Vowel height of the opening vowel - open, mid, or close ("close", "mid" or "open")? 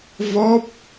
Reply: mid